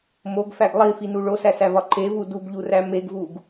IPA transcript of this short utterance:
m o ɡ f æ ɡ lˠ i f i n u ɭ o s æ s æ v ɒ ǃ e v u d u ɡ ʎ u r æ m e ɡ v u ɡ

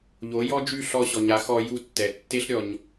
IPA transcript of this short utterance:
ʎ o˩˥ j ɔ˥ d͡ʒ y˥˩ ɬ ɔ˧ ɕ ɔ˩ ɲ a˩˥ x ɔ˧ j u˧ tː ɛ˩ tː e˥ ɬ ɾʲ ɔ˩ ɲ

